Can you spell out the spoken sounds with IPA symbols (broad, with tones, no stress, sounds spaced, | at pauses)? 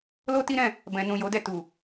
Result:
l o˦ t i˦ ɾ ɛ̃˦˨ | b ɛ̃˨ n ũ˨ j o˨˦ d ɛ˦˨ t u˨